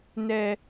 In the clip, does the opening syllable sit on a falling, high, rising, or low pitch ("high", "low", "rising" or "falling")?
low